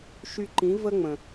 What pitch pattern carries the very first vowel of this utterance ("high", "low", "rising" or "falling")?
high